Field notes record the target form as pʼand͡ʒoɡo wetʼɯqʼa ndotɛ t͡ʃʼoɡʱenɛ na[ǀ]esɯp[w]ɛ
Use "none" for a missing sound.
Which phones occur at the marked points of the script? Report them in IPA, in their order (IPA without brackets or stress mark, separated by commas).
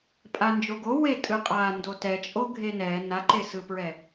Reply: ǃ, ɹ